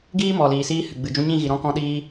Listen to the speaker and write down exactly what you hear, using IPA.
ɡ iː˦ m ɔ˨ l iː˨ s iː˧ h ɨ˨ ɡ͡b ɨ˨ d͡ʒ ũ˧ ɲ ĩ˦˨ ɣ i˨ ɾ ɔ̃˧ k ɔ̃˧ ɗ iː˧

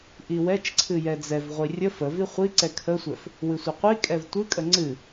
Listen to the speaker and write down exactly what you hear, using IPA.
ʔ i w ɛ t͡ʃ ǀʰ ɨ j ɛ d͡z ɛ v ʁʷ i rʲ ə f ə v i χʷ i ǀ ɛ kʰ ə sʷ ɛ f | w ɨ sʷ ə qʷ i kʼ ɛ v tʷ ɨ kʼ ə ŋ͡ǀ ɨ

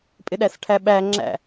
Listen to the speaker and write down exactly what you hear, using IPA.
pʼ ɪ ɗ æ s ʈʰ æ ɓ æ ŋ͡ǁ æ̰

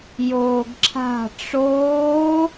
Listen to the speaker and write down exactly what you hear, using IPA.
j oː ɡ ǁʰ a̤ ʈ͡ʂ oː

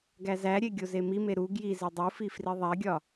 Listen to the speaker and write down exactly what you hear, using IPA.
ɡ æ z æ ɾʲ e ɡʲ o z e m i m e ɾ u ɡ j i z e dˤ u f i f r i ðˤ æ ɡʲ ɒ

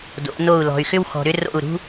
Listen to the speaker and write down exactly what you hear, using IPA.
d o̰˨˦ n o˦˨ u̯ l ɔ̤˨ y̯ x ʏ˦ w x ɔ̤˨ ɾ ʏ˦ r o̰˦˨ u̯ ɾ ṳ˦

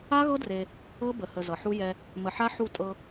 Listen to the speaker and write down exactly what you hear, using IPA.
a˦ ɣ ɤ˦ d r e˦ | ɤ˦ b ə˨ h ə˨ z ʌ˨ ħ u˦ j ɛ˦ | m ə˨ ħ a˦ ħ u˦˨ tʼ ɤ˦

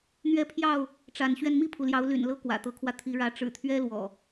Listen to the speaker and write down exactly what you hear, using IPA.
n̪ ɥ ɛ˦ pʰ j ɑ˥˨ ʊ̯ | ʈ͡ʂ a˨˦ n ɕ ɥ ɛ˧ n m i˥˨ pʰ u˩ l j ɑ˨˦ ʊ̯ l y̰˨˩ n l ɤ˥˨ k w ä̰˨˩ t̪ ɤ˨˦ kʰ w ä˧ t̪ʰ i˨˦ ɻ ä˨˦ ʈ͡ʂ ɻ̩˨˩ t̪ʰ ɥ ɛ˦ l w ɔ̰˨˩

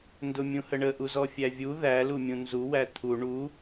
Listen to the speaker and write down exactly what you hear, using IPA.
n d ʊ mʲ ũ h ə ɳ ə ʔ u z ɔ fʲ æ vʲ u ð æ l u mʲ ũ n z u w æ t̪ʰ u ɳ u

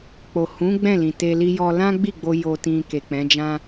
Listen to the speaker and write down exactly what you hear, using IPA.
k͡p o˨ h ũ˨˦ ɡ͡b ɛ̃˦˨ l ĩ˨ t e˧ l i˧ j ɔ˧ l ã˦ ɡ͡b i˦˨ ɡ͡b o˧ j o˨ t ĩ˨ k e˨ k͡p ɛ̃˨˦ d͡ʒ ã˦

